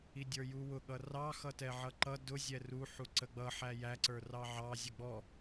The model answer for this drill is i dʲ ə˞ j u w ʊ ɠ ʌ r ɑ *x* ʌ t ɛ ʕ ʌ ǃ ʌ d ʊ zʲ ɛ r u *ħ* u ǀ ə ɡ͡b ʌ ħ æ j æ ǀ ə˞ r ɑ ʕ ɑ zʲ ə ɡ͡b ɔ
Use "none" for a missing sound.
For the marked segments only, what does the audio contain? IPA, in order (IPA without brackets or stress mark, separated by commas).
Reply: x, ħ